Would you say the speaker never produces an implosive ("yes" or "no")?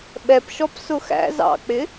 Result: no